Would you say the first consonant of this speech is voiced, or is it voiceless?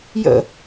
voiced